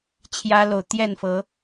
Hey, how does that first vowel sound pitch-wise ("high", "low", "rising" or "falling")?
high